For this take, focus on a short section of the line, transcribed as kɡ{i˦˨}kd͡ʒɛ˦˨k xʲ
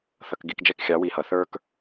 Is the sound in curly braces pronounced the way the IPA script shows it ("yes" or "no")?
yes